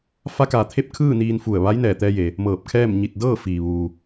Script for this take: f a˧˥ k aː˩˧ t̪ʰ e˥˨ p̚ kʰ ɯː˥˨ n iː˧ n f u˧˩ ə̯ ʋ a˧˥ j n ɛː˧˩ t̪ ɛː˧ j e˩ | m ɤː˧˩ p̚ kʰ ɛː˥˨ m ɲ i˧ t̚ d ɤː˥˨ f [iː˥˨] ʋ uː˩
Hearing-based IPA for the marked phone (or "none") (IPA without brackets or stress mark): iː˩